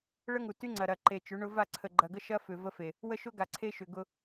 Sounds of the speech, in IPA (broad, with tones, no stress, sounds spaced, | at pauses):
ɭ ə˦ ŋ u˨ t y˦ ŋ͡ǀ ɐ˨ ɾ ɐ˨ ǃ e˨ t͡ʃ ʏ˨˦ ɳ ʊ˦ v a˦˨ ǀʰ ə˨ ɡ͡ǃ ɐ˨ ɡ ə˦ ʃ ɐ˦ f ʏ˨ v ə˦ f e˨ | w ə˦ ʃ ʊ˦ ɡ a˨ ǀʰ e˦ ʃ ʏ˨ ɡ ʊ˦